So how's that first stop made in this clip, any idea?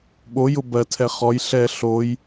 implosive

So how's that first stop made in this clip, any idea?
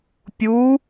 plain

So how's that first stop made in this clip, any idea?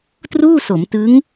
plain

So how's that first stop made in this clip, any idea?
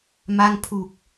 aspirated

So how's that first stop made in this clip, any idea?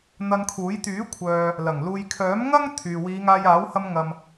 aspirated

